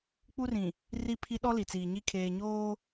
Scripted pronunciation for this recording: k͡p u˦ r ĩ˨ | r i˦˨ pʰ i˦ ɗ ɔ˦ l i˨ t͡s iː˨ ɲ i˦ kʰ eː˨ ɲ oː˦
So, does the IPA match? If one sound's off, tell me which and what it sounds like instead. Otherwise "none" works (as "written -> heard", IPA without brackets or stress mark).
none